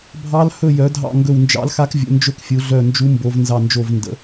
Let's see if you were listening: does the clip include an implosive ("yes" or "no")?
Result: no